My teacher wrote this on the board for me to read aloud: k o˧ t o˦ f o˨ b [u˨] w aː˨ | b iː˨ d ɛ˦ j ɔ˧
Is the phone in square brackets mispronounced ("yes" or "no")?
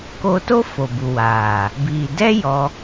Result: no